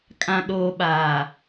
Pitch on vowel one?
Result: low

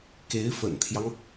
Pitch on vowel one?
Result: rising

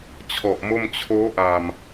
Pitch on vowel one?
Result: low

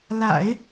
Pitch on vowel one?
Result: low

